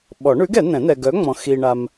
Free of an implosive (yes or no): no